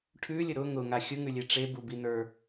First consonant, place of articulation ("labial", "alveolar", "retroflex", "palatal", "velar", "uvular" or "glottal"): retroflex